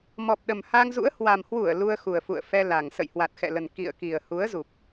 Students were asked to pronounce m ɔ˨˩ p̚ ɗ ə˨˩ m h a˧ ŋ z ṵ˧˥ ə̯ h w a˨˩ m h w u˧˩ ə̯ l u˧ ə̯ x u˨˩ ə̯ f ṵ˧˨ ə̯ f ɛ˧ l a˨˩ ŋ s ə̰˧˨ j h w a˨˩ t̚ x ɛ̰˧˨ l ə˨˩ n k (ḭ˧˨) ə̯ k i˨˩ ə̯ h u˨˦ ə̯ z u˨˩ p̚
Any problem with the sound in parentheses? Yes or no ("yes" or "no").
no